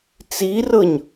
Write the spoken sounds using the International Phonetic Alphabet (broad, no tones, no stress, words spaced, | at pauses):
t͡sirɤɲ